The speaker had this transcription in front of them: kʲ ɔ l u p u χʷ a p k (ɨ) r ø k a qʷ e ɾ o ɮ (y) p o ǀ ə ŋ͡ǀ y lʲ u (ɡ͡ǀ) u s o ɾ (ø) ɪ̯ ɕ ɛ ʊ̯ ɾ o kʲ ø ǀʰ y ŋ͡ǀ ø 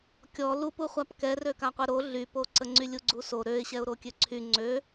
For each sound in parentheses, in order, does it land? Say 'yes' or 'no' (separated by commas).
no, yes, yes, yes